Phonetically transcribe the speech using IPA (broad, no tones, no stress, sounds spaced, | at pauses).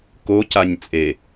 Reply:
k o c a ɲ t͡sʼ e